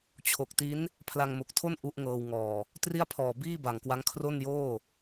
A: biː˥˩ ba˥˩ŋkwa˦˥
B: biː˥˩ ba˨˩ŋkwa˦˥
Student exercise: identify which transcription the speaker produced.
B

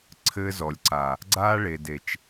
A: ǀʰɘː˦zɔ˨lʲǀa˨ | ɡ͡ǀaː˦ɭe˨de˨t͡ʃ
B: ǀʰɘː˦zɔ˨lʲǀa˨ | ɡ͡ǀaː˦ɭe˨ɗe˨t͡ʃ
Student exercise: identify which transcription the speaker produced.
A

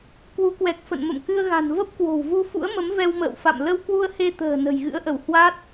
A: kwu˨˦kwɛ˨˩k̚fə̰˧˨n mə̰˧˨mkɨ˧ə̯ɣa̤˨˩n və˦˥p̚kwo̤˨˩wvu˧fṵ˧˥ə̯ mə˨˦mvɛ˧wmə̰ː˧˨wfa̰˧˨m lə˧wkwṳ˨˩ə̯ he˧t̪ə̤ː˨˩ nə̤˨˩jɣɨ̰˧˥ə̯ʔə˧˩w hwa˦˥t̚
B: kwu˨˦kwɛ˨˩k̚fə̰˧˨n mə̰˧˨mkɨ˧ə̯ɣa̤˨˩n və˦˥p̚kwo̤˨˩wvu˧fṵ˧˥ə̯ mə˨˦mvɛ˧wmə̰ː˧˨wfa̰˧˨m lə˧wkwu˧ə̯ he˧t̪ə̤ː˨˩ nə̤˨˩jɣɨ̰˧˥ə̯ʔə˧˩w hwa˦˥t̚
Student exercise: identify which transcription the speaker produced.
B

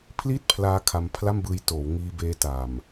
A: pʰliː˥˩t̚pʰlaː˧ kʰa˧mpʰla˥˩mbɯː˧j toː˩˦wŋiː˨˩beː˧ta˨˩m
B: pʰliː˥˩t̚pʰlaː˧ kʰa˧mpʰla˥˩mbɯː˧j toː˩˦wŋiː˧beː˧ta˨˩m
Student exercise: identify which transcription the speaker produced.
B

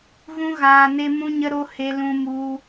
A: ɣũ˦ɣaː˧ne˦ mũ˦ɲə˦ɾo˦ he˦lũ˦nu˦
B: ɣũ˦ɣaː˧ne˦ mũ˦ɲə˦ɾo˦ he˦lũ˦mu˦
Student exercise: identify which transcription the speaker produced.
B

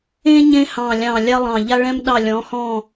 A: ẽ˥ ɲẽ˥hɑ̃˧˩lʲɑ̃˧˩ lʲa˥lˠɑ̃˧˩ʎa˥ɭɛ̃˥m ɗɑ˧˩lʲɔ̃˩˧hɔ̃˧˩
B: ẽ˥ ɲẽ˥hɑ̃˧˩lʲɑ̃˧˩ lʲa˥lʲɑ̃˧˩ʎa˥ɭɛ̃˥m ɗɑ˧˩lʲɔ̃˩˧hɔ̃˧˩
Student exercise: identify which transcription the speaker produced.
A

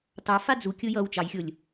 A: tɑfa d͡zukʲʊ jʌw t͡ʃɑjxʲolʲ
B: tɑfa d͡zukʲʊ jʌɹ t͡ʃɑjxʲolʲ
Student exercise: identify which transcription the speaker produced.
A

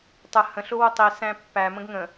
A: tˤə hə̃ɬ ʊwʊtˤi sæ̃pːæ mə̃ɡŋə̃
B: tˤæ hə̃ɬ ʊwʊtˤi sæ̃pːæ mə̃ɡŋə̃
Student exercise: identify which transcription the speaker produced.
A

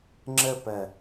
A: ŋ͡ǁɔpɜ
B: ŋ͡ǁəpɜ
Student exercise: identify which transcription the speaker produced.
B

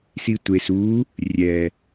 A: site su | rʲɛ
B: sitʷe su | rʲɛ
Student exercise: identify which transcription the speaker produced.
B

